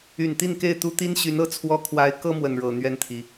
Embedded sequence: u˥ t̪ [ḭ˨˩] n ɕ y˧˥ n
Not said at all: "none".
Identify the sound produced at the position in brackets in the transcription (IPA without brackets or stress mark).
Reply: i˥